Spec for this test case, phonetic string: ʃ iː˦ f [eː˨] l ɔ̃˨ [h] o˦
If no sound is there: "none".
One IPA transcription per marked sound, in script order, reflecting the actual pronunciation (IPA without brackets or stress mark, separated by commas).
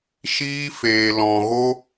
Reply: eː˨, ɣ